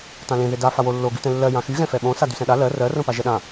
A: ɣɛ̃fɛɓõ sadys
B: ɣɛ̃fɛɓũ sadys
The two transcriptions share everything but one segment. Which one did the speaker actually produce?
A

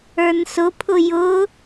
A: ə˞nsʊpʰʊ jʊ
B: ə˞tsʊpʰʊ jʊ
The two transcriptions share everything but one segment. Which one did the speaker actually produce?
A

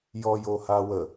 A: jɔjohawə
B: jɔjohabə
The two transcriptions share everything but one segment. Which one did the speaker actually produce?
A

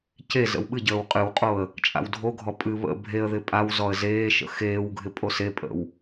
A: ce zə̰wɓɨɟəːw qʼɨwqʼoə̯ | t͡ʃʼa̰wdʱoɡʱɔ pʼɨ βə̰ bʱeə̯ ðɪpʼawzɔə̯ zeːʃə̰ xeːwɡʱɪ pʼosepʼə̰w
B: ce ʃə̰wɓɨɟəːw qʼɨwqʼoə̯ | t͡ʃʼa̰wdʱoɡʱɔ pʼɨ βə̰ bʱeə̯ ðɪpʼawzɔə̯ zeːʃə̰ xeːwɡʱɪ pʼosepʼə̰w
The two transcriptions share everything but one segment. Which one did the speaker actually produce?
A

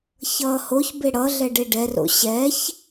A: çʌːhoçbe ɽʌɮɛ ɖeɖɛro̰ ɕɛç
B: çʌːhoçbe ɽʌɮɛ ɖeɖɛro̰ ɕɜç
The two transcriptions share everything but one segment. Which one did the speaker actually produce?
A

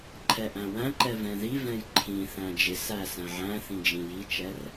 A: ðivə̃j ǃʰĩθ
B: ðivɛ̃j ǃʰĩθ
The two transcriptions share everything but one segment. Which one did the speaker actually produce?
B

